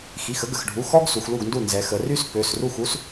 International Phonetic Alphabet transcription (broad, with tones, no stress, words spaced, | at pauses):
xi˩˧˩xə˥ɡə˩˧˩xɖʱu˩˧˩ xɔ˥ɡ su˩˧xlu˥˩ɡndu˥˩ nzɛ˩˧xə˩˧ry˥s pø˩˧˩sru˥˩x u˥s